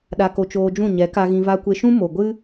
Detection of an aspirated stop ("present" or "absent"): absent